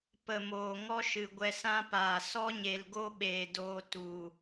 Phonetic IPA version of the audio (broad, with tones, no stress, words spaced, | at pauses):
pə˨ moː˨ŋɔ˦ʃɨ˨ ɡʷɛ˧sã˦paː˨ sɔ˦ɲe˨lɡo˦ɓeː˨ doː˧ tu˨